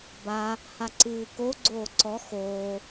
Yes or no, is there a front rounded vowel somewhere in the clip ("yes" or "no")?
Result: no